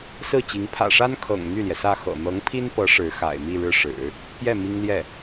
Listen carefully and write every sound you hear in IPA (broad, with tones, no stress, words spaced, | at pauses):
sɹ̩˥˩t͡ɕi˧˥ŋ pʰä̰˨˩ʂa˥nkʰɤ̰˨˩ŋ n̪y˥˩ljɛ˩sä˥˩ xɤ̰˨˩n̪ɤ˧˥ŋpʰi˥npɤ˧˥ ʂɻ̩˧˥xa̰˨˩ɪ̯ mi˥˧ɻɻ̩˥˩ ʂɻ̩˨˩˦ | pjɛ˥˩ mi˥ŋljɛ˥˩